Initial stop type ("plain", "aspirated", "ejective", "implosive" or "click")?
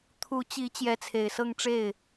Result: aspirated